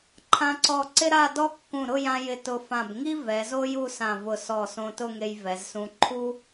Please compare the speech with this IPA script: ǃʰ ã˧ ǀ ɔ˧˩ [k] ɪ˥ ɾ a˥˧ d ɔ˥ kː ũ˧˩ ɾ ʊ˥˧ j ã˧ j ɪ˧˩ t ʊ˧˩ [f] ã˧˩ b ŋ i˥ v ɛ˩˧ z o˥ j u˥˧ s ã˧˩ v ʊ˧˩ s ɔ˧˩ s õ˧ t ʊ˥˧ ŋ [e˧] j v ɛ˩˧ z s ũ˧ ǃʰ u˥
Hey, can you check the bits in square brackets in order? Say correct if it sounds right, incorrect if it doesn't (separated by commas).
incorrect, correct, correct